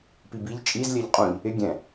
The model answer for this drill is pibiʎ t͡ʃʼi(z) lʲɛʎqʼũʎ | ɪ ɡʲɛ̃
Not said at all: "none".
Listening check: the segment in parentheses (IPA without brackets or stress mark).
z